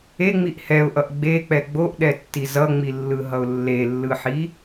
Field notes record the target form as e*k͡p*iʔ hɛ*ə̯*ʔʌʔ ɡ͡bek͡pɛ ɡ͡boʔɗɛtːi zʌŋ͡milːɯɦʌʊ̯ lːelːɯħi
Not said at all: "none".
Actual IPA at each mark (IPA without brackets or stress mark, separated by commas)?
ŋ͡m, ʊ̯